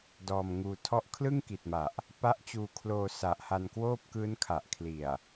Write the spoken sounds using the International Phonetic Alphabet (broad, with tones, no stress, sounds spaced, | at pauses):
d ɔː˧ m ŋ uː˧ tʰ ɔ˥˩ ʔ kʰ l ɯ˥˩ ŋ k i˨˩ t̚ m a˨˩ ʔ | p a˦˥ ʔ t͡ɕ uː˧ kʰ l oː˧ s a˨˩ ʔ h a˧ n k w oː˥˩ p̚ k ɯː˦˥ n kʰ a˨˩ ʔ kʰ l i˨˩ a̯